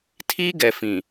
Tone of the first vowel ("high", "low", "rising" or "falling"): high